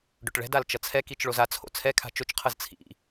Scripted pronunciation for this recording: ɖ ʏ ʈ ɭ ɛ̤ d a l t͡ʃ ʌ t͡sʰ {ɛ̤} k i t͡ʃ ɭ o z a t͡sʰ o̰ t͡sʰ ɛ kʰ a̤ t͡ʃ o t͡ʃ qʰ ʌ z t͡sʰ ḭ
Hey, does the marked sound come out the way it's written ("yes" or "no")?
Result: no